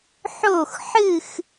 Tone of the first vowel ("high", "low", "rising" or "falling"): falling